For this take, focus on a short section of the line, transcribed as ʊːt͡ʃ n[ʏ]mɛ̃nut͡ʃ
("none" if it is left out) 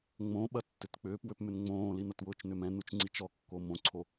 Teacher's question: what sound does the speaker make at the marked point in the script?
ʏ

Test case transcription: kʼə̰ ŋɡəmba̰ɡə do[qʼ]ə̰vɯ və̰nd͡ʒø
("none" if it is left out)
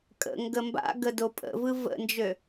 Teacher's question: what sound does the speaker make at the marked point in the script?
pʼ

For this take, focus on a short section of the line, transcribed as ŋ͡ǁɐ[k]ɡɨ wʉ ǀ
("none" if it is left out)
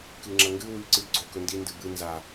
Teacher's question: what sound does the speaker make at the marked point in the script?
ŋ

